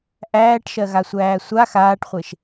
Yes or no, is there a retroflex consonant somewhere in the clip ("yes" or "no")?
yes